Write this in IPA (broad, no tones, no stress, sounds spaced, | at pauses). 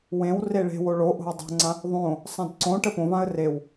w ẽ w r e ɭ e̤ w o ɭ o ʔ o̤ w dˤ o̤ ŋ͡ǀ ã | ðˤ õ | sˤ ã d ǀ õ ʈ ə p õ v ã ə̯ r e w